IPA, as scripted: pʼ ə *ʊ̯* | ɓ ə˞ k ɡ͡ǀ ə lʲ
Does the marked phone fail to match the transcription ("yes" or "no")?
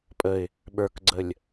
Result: yes